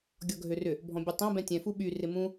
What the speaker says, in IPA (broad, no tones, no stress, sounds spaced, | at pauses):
ɡʲ ɔ ɡʱ ø r ʏ | bʱ ɔ̃ bʲ u tˤ ɐ̃ b ɛ̃ tʲ ɛ̃ f u ɓ y r ɪ m ũ